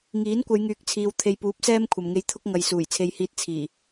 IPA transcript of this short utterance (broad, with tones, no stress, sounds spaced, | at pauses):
ŋ iː˨˥ n kʷ ɐ˨˧ j ŋ yː˨˥ k̚ t͡sʰ iː˨ w t̪ʰ e˨ j p uː˨˥ p̚ s ɛː˥ m kʷʰ ɐ˨ m ŋ e˧ j t̪ʰ ʊ˥ k̚ ŋ ɐ˧ j s uː˨˩ j t͡sʰ e˧ j h iː˧ t̚ t͡sʰ iː˨˩